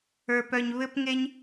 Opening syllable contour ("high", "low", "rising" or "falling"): high